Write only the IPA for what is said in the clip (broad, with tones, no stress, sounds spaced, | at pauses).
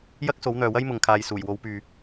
j ɐ˥ k̚ s o˨˥ w n̪ œː˨ w ɐ˥ j m ʊ˨ ŋ kʰ aː˨ j s uː˨˩ j w o˨˧ w p yː˨